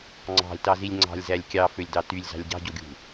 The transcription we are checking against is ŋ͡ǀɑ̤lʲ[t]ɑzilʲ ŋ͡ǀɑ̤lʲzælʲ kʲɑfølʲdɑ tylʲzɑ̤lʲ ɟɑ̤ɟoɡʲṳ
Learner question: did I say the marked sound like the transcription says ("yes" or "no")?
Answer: yes